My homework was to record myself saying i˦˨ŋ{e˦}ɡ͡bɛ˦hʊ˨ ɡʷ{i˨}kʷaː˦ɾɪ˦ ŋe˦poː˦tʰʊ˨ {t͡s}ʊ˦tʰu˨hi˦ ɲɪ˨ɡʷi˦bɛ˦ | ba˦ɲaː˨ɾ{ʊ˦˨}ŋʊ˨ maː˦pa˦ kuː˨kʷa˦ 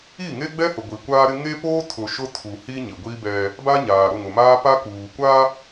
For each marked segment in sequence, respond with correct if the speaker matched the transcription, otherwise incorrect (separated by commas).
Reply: correct, correct, incorrect, correct